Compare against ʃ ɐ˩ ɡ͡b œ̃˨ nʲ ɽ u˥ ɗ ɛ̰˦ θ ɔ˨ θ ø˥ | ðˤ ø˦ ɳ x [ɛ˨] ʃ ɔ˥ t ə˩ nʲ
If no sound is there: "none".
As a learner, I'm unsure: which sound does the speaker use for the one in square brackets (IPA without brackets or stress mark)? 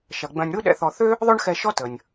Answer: ɛ˨